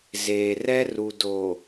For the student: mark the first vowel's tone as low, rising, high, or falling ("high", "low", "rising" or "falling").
low